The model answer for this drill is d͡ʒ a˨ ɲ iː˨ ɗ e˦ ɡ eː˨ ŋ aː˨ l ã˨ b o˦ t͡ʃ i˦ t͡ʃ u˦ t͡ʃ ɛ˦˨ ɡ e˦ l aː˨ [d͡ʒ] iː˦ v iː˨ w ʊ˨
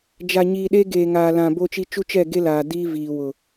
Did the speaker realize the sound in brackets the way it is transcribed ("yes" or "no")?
no